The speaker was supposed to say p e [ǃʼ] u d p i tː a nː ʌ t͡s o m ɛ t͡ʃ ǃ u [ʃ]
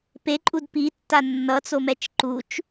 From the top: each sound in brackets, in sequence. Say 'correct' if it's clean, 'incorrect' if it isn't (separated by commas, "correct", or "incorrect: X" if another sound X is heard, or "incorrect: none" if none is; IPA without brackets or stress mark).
correct, incorrect: t͡ʃ